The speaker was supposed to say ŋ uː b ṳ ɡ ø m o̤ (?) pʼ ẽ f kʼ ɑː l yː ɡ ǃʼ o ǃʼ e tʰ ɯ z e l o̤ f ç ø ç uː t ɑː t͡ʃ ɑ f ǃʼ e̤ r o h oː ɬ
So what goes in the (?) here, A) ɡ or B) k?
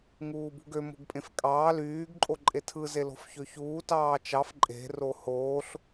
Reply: A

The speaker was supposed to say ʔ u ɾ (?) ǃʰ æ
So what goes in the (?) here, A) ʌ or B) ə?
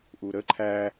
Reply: B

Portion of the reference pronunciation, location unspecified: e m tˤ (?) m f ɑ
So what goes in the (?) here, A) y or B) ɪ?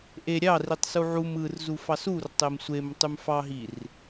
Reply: A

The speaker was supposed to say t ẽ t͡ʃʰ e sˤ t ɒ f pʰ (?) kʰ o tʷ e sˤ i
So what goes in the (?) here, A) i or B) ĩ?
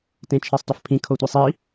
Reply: B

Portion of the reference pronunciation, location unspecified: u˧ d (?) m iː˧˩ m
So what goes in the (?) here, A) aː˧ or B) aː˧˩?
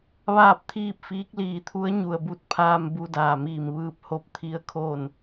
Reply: B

